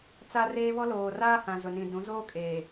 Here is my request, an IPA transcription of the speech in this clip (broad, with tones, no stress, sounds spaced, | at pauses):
t͡s a˦ r eː˦ β ɔ˦ l oː˨ r aː˦ h ã˨ z ʊ˨ n ĩ˨ d ũ˨˦ z oː˦ kʼ eː˨